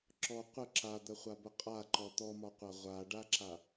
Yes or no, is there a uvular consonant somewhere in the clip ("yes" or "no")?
yes